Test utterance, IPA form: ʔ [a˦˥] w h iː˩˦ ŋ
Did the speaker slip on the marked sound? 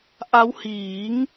no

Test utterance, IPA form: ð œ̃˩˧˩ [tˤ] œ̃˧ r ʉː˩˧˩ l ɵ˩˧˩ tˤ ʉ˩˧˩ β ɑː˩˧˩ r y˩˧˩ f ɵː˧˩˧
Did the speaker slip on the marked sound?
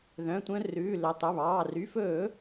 yes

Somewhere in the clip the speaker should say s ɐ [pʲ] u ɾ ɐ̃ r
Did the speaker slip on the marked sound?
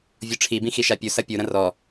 no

